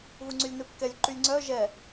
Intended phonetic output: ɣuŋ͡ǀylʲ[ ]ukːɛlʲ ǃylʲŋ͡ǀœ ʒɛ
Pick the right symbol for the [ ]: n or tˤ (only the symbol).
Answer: n